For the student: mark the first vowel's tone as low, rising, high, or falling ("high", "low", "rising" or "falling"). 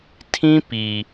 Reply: high